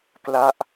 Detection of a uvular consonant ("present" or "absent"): absent